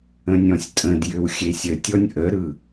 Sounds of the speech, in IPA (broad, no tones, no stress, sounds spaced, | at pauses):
ə̃ nʲ ɔ̃ sʲ tʼ ə̃ d j ʏ w xʲ e sʲ ə tʲ ɔ nʲ ʔ ə ɾ ɯ